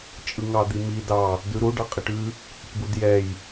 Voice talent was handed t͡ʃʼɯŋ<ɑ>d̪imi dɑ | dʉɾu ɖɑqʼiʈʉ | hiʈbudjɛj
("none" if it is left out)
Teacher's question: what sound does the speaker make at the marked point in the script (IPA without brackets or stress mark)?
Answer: ɑ